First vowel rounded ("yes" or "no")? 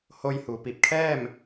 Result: yes